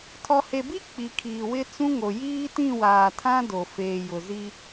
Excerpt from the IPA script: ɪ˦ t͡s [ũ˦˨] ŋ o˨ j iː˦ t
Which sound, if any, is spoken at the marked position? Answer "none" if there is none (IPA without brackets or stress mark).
ũ˦